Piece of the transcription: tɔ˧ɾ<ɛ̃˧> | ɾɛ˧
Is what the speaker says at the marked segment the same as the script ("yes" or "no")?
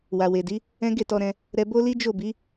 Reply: yes